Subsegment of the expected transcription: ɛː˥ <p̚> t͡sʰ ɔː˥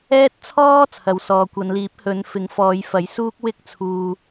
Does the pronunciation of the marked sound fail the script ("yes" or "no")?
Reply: yes